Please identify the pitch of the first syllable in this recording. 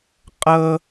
high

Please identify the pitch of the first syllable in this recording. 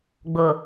low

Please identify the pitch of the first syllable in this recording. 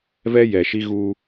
high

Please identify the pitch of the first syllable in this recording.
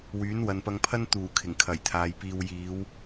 rising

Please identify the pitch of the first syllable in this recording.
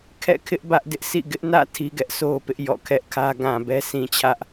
falling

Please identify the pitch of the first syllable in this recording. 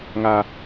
low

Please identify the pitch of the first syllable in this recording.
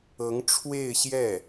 rising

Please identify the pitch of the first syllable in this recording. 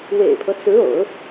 low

